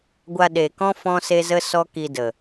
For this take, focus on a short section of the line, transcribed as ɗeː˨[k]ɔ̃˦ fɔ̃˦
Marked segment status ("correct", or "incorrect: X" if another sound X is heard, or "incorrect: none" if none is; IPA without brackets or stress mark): correct